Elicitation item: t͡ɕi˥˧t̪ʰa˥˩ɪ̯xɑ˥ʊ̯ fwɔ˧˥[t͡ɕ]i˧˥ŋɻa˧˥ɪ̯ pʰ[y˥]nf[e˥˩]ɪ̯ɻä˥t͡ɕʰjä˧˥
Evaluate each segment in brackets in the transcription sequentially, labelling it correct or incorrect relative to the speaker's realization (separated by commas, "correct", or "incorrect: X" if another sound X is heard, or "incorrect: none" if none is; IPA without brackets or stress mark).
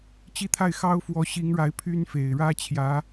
incorrect: ɕ, correct, incorrect: e˨˩